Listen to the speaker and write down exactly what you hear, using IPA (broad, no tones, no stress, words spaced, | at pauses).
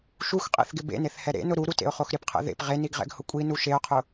ʃuxqʼḛθɡɪ bḛneθhɛ ɾḛnʊ ɾuɾutḛʊ̯χox ɾɪpqʰɛ̰ ðḛp ʁeniɡʁɛ̰ɡhʊ kʷʼinu ʃeʊ̯qʰʊ